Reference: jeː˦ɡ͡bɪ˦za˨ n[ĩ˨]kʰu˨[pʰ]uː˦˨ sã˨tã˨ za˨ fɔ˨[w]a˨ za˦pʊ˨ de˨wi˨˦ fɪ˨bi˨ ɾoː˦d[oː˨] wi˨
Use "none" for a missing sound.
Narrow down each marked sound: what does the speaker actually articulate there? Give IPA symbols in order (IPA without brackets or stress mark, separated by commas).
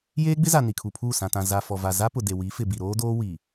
i˨, pʰ, v, oː˦